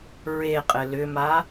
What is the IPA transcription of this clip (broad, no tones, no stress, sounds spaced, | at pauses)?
ɹ e qʼ ɘ l ʏ m a